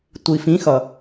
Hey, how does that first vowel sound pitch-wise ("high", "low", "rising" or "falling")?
low